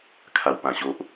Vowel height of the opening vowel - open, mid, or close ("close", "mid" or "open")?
open